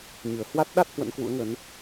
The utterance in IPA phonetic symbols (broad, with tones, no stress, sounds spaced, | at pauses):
ɲ ɨ˧˩ ə̯ h w a˦˥ t̚ ɗ a˦˥ t̚ h w ə̰˧˥ n k w ṵ˧˥ ə̯ ŋ ə˨˦ n